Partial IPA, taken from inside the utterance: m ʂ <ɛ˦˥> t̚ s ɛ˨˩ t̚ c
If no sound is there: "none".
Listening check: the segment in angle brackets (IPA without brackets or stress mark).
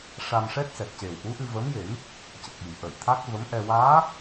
ɛ˦˥